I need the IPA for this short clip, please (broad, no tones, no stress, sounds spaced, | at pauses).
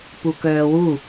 p u k œː w u